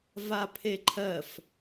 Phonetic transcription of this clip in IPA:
v a pʰ e ǃʰ ɜ f

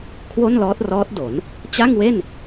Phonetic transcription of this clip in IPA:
kʰ w o˥˩ n l ɔː˦˥ t̚ r ɔː˦˥ t̚ d o˩˦ n | t͡ɕ a˥˩ ŋ w e˥˩ n

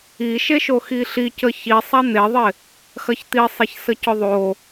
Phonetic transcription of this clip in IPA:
i ʃ e ʃ o x i ɬ i c ə ç i sˤ a n̪ e ðˤ ɪ | x ɐ ç t̪ i sˤ e ç s ə c ʊ ðˤ o

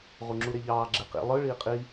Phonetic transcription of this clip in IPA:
ʁ u ŋ͡ǁ u ɾ e ʎ ɑː ɡ͡ǁ e q ḭ lˠ ɯ ɭ iː qʼ i

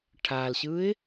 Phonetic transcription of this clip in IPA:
ʈʰ a l ɕ ɯ ɪ̯

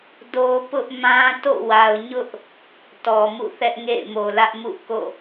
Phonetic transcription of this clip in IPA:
d o˦ p ʊ˦ ʔ m ã˦ t o̰˦˨ w a˨ ʊ̯ ɲ ʊ˦ ʔ | t ɔ˨ m ṵ˦˨ θ ɛ˦ ʔ ŋ ḛ˦˨ ɪ̯ m o˨ l ä˦ ʔ m ṵ˦˨ k o̰˦˨

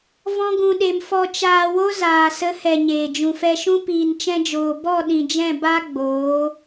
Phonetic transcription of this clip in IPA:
v ɔ̃˦ ɡ ũ˧ ɗ e˧ m f ɔ˧ t͡ʃ aː˧ w o˦ z aː˨ s ə˨˦ h ɛ˨ ɲ eː˨ d͡ʒ ũ˨ f ɛ˧ ʃ ũ˦ p iː˨ n t͡ʃ ɛ̃˧ d͡ʒ oː˨ b ɔ˦˨ ɗ ĩ˨ d͡ʒ ɛ̃˦˨ b a˦ ɡ͡b oː˨˦

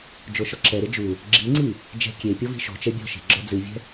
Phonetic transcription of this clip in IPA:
d͡ʒ o ʃ ɔ ǁ ɛ ɾ e d͡ʒ u | ɡ͡ǁ i ŋ͡ǀ i | d͡ʒ ɛ̤ kʲ e pʲ ɔ v i̤ ʃ o̤ t͡ʃ ɛ bʲ ɔ̤ ʃ e̤ ɡ͡ǁ ɔ d͡z ɨ vʲ ɛ̤

